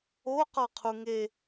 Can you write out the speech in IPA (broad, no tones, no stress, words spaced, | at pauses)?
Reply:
o qɔqʰuŋe